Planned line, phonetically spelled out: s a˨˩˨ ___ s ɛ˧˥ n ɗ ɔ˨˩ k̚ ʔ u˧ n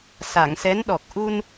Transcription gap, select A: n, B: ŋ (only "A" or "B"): B